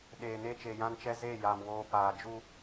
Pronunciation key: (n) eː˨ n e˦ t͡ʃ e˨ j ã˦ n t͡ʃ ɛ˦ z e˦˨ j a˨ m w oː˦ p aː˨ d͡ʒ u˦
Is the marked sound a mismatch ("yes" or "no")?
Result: yes